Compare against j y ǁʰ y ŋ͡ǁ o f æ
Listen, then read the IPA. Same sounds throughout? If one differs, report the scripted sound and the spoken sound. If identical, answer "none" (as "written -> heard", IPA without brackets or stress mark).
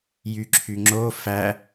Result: none